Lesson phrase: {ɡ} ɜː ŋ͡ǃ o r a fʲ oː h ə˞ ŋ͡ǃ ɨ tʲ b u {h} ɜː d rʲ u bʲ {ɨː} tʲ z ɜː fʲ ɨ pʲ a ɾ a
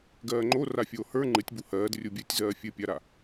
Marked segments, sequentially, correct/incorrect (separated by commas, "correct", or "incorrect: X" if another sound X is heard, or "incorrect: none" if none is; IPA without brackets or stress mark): correct, correct, correct